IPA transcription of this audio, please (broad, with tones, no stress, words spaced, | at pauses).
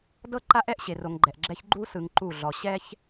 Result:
dɤ˦ǃa˦ʔɛ˦ʔ ɕe˨ro˨ŋɡ͡ǃɛ˨ʔɡ͡ǁɛ˦ç ɡ͡ǃu˦sɯ˨ŋ ǃu˦˨ɮɔ˨ ɕɛ˦ç